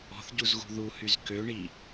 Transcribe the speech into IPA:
ɔ̤ θ ɟ u z ɣ ṳ ð u h y z k ø ɳ i

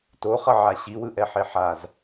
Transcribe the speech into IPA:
t o χ ʌ ʕ a ɕ i w ɯ ʔ ɛ ħ e ħ a z

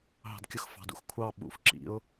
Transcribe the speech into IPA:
ɦ ɑ̤ d kʲ ʊ x f ɑ̤ d ṵ x kʷʰ ɑ ɓ ṵ f ǁ ḭ ʊ̯

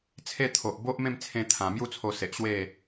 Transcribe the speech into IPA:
t͡sʰ e˦ t̪ʰ o˨ ʔ b o˦ ʔ m ẽ˥˧ m t͡sʰ ẽ˧ t̪ʰ ã˨˩ m j u˥˧ t͡sʰ o˧ s e˨ ʔ ɕ w e˥˧

